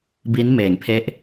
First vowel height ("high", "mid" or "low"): high